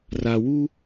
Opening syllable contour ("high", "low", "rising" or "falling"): low